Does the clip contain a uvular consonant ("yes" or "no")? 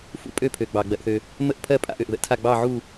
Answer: no